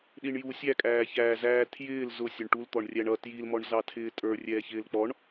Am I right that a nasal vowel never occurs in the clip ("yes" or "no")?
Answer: yes